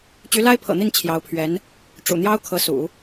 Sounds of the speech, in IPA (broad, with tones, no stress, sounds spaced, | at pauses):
t͡ɕ y˧˥ l a˥ ɪ̯ pʰ ɤ̰˨˩ n̪ i˥˩ n t͡ɕʰ j ɑ˧˥ ʊ̯ pʰ ɥ ɛ˧˥ n | ʈ͡ʂ ṵ˨˩ n̪ j ɑ˥ ʊ̯ kʰ ɤ˧˥ s ṵ˨˩˦